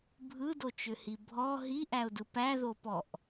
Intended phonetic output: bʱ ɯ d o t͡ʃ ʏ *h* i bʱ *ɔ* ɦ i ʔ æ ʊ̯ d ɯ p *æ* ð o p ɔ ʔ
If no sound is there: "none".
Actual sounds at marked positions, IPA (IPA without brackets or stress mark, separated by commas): h, ɔ, æ